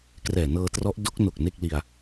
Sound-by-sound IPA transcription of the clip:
krɛː˨˩nɤː˧trɔ˦˥ʔ do˦˥k̚no˨˩k̚ ne˥˩k̚li˧a̯

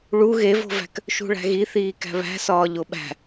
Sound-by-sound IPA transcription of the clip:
ɭu ɣevo̤væ̤k | ʃṳɭæ̤ɣiθiː kæ̤βæ̤sɒː ʎoɓæ̤

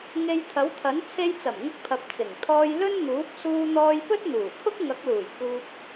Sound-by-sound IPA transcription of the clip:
ŋe˧jt̪ʰɐ˨˥wt̪ʰɐ˨˥n t͡sʰe˧jt͡sɐ˨˩mŋʊ˧k̚pʰɐ˨p̚ t͡sɪ˨˩ŋ t̪ʰɔː˧jlɵ˥nn̪uː˨˥p̚ suː˧n̪ɔː˧jpɵ˥t̚n̪uː˨˩ kʰʊ˥k̚ŋɐ˨˥k̚luː˨˩j kuː˧p̚

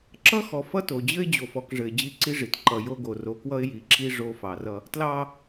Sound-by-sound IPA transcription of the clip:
ǁʌ˦xɔ˨ fʌ˦to˨d͡ʑɘ˦ɪ̯ d͡ʑo˨fɔ˨kʐɘ˨ɪ̯ d͡ʑi˦˨ǀi˦ʐi˨t ǃʌ˨jo˦ɡo˨ ro˨˦kwʌ˦ɪ̯ ji˨˦ǁi˦ ʐo˦ fɑ˨rʌ˦ | tlɑ˦

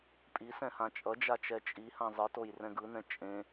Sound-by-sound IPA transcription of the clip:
pʼisɛ̃hã t͡ʃʼʌd͡ʒat͡ʃɛ t͡ʃʼihã zˤɯtojrɛ̃ɡ ɯnɛ̃ t͡ʃʼẽ

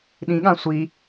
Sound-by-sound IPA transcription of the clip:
ɗĩɠã sʷi

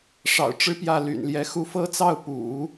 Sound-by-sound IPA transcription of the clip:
ʂɑ̰˨˩ʊ̯ʈ͡ʂɻ̩˥pjä˥˩ ly̰˨˩nljɛ˧˥xu˥˩ fɤ˥t͡sɑ˥˩ʊ̯ pṵ˨˩˦

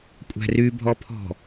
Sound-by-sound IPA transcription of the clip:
kʷʼæ̤rybʱɔpʰɔ̤

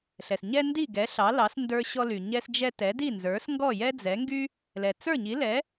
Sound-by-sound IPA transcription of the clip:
ɬɛ˩sɲɛ˧ ndi˥˩ɡɛ˩˥ ɬɑ˩˥lɑ˩˥s ndə˞˧ ɕɔ˧ly˩ ɲɛ˧sd͡ʒɛ˧ tɛ˩˥di˥˩nzə˞˩˥s ŋɡɔ˥˩jɛ˥d͡zɛ˩˥ŋɡy˥ | lɛ˩t͡sə˞˥˩ɲi˩˥lɛ˩˥

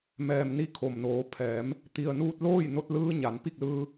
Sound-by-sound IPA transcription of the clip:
mɛː˩mni˧˩ kʰo˩mnoː˩˧pʰɛː˩˧m | t̪i˩ə̯nuː˧t̚loː˥˨j no˧t̚lɯː˧ ɲa˩˧npi˥˨k̚lɯː˧

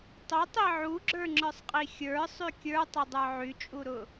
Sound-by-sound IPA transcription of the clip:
tˤʊtˤi ʕuɡ͡ǁə˞ŋ͡ǁə˞sˤqʼi xʲə˞sˤy kʲə˞tˤʊdˤə˞ ʕyt͡ʃʼuɾʊ

